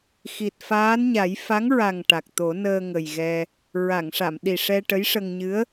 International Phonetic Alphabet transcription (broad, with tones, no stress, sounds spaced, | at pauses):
x i˨˩ t̚ f aː˧˥ n ɲ a˨˩˦ j f a˧˥ ŋ ɹ a˨˩ ŋ ʈ a˨˩ k̚ t̪ o˨˩˦ n əː˧ ŋ ə˨˩ j ɣ ɛ˧ | ɹ a˨˩˨ ŋ ʂ a˨˩˨ m ɗ i˨˩ ʂ ɛ˧ ʈ ə˧˥ j ʂ ə˧ ŋ ɲ ɨ˧˥ ə̯